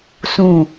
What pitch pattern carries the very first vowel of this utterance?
falling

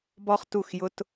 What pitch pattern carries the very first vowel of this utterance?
high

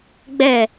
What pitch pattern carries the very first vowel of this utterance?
falling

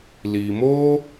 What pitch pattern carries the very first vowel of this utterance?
low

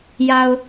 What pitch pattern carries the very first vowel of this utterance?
low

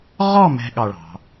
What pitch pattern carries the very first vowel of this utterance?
falling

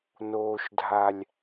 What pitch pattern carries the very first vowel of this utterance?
low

